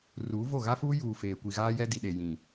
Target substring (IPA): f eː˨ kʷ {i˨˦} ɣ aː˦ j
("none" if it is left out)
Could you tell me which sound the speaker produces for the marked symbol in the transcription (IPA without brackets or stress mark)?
i˨